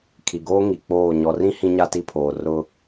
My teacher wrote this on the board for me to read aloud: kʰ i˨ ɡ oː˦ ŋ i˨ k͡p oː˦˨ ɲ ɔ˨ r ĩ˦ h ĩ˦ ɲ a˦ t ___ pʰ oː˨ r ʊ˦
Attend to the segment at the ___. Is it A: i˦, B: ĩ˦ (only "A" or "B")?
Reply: A